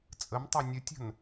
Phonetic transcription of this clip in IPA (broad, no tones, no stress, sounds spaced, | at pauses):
t͡sʼ ə m tˤ a nʲ ə tʲ ə̤ n